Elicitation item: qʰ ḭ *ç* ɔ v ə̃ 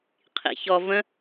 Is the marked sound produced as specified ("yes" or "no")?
yes